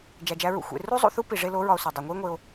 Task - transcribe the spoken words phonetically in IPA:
d͡ʒ æ˨ d͡ʒ æ˧ ɹ ṵ˧ xʷ ḛ˨ r u˦ zˤ ṵ˧ θ u˦ p i˨ ʐ e˧ l o˨˦ ɹ ɒ˧ o̯ s u˨ dˤ u˨ ŋʷ i˦ e̯ ŋʷ e˧ o̯

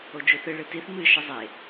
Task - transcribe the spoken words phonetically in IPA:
o d͡ʒ u θ ɨ ɭ ɨ t i θ m ɨ ʃ ə zˤ e

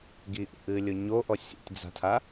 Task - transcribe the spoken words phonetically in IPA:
ɡ i ʔ ṵ ʔ ɨː lʲ o ɲ o ʔ ɔ sʲ ṵ tʲ d͡z a̤ tʰ a

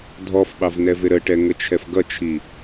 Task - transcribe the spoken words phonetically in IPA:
dʱ ɔ f ɓ ɑ v n ɛ v ɪ ɾ ə ʈ ɛ ŋ ə t͡ʃʰ ɛ f ɡ ʌ t͡ʃʰ i

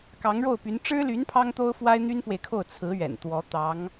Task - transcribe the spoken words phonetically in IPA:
k ɑ˧˥ ŋ ɻ o˥˩ ʊ̯ p y˧˥ n ʈ͡ʂ ɻ̩˥ l y˧˥ n pʰ ɑ˥ ŋ t̪ o˥ ʊ̯ f w a˥ ɪ̯ n̪ y˥ n f w e˨ ɪ̯ kʰ o˥˩ ʊ̯ t͡sʰ ɹ̩˧˥ ɥ ɛ̰˨˩ n t̪ w ɔ˧˥ t̪ ɑ˧˥ ŋ

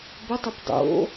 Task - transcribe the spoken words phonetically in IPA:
b ɵ tˤ u p dˤ o̰

